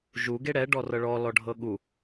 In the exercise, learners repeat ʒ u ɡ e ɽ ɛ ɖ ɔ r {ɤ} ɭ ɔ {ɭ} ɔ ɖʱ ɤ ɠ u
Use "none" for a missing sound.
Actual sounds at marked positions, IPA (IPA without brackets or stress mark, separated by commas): ɤ, l